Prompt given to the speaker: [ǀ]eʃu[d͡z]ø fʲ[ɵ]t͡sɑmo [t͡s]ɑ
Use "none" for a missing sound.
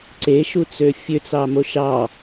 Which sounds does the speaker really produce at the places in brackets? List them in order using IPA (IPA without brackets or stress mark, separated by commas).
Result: ǀ, t͡s, ø, ʃ